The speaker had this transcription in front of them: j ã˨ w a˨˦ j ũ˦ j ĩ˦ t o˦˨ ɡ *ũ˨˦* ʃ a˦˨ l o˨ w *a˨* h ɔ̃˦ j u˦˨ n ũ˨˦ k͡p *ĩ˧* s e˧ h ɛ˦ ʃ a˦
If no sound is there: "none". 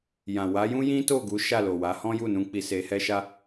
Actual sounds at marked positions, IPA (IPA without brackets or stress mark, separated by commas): u˨˦, a˨˦, i˧